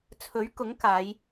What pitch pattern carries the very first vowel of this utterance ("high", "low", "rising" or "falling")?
rising